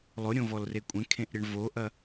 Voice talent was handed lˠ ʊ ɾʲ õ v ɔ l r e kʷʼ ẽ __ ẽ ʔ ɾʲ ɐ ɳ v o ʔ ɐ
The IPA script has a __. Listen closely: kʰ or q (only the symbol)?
kʰ